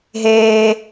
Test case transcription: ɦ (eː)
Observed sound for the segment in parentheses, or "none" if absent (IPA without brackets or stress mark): eː